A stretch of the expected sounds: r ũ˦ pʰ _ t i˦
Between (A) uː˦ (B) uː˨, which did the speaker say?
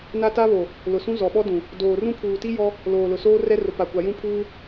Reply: B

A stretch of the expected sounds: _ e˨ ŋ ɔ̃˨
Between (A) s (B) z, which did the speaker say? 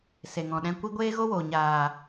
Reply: A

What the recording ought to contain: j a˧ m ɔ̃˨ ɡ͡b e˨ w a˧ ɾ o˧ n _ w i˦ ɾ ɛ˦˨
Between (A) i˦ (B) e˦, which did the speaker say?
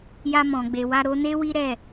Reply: B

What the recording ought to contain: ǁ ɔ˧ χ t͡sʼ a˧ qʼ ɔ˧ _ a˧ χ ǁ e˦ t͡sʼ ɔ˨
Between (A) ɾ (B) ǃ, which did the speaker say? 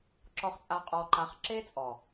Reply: B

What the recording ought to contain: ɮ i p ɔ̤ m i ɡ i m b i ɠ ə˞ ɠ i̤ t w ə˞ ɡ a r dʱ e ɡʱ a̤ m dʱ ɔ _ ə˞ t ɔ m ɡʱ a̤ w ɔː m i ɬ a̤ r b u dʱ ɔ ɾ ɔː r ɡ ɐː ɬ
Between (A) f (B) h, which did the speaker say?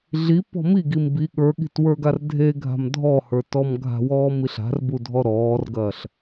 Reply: B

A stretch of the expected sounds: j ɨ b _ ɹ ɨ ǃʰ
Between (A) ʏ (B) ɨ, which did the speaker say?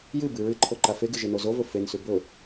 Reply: B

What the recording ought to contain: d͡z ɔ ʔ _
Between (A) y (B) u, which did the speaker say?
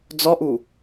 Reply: B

